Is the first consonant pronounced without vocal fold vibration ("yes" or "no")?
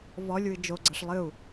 no